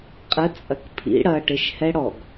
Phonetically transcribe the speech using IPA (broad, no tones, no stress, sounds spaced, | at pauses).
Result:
qʼ ə t͡sʼ ɐ k pʰ ḭ ɽ ɐ ʈ e ʃ h ɛ ɽ ɔ ɡ